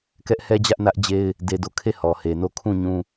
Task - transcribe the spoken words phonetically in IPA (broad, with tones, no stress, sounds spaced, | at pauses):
k ɛ˦ ʔ h ɛ˦ d͡ʑ ä˦ ʔ n ä˦ ʔ d͡ʑ e˦ ɪ̯ | d e˦ d o˦˨ kʰ e˦˨ h ɔ˨ h e˨ n o˦˨ kʰ ũ˦˨ ɲ ũ˦